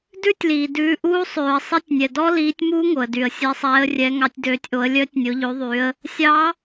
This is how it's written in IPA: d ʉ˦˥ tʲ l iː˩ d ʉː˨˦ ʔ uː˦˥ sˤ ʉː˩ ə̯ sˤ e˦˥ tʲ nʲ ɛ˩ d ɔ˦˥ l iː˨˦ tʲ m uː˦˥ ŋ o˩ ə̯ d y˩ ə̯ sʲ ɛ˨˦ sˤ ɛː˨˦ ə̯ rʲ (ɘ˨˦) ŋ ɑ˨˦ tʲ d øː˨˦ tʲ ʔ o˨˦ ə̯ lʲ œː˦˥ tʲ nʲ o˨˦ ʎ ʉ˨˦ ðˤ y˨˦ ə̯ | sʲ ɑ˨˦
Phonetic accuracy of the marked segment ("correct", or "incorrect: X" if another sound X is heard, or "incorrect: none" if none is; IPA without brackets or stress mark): incorrect: ɛ˨˦